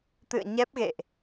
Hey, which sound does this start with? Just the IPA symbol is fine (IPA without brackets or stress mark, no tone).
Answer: t̪